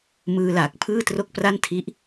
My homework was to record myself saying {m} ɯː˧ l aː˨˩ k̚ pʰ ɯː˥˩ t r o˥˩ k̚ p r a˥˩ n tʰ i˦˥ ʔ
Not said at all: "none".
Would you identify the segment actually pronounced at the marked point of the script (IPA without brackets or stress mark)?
m